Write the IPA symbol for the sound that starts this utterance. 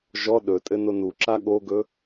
ʒ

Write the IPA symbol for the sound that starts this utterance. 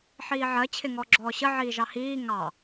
ħ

